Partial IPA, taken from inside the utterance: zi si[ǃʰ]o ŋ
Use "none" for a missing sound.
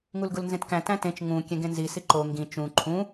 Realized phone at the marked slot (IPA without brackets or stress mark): ǃ